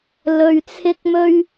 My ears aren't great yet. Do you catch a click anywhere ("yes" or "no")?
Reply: no